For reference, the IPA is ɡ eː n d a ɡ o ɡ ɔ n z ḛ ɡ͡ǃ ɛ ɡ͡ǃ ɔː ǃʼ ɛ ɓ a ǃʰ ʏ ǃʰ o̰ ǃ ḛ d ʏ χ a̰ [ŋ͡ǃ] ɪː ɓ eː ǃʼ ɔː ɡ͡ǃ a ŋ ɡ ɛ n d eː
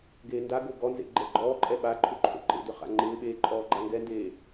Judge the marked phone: correct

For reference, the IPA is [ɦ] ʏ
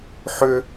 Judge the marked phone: incorrect: ħ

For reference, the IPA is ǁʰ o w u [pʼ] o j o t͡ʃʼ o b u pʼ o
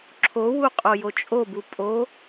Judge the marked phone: incorrect: qʼ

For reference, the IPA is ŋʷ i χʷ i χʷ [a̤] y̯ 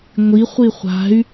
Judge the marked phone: correct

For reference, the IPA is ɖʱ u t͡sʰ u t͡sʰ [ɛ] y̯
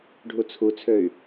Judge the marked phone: incorrect: ø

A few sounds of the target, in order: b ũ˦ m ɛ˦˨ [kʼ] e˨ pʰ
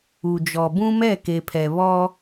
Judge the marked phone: incorrect: k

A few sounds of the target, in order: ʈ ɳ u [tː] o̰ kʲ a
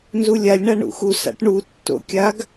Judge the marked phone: correct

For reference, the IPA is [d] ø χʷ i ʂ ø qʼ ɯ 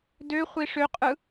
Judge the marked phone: correct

